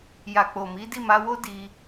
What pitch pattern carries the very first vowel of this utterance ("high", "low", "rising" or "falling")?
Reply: low